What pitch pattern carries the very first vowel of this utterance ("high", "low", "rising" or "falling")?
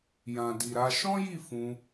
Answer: low